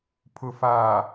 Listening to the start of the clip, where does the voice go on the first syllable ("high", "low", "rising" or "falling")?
low